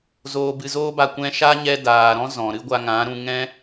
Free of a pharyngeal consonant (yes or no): yes